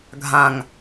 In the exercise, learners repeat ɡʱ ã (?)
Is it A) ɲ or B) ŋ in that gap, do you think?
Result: B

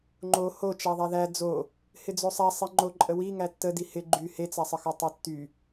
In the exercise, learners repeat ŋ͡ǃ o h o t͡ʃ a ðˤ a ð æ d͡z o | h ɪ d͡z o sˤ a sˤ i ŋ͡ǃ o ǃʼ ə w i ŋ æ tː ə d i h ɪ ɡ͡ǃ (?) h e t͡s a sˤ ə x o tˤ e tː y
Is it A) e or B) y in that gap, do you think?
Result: B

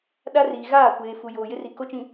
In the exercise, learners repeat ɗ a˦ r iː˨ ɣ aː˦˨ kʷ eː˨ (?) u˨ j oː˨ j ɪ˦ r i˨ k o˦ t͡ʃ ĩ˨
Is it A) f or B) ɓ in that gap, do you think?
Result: A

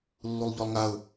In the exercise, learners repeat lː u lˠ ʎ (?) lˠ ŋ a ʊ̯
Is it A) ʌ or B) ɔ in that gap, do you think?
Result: B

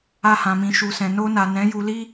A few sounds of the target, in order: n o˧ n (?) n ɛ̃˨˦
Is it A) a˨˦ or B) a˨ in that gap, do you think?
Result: B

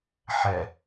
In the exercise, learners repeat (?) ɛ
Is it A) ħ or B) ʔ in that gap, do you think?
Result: A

